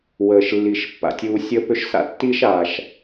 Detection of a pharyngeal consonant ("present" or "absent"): absent